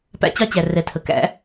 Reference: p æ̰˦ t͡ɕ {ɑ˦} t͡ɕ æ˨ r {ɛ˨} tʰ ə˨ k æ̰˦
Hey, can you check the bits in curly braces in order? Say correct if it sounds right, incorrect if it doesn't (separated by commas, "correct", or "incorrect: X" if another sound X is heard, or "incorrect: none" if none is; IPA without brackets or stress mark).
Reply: correct, correct